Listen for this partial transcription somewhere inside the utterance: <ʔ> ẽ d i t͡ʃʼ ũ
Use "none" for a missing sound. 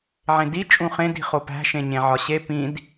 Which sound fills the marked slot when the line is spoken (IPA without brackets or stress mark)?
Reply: ʕ